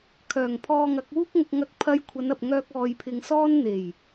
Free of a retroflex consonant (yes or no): yes